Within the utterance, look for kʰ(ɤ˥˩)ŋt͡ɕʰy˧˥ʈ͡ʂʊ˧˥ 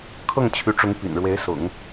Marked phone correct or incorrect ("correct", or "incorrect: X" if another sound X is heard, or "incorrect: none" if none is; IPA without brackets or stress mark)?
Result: correct